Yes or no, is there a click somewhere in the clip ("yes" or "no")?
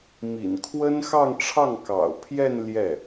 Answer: no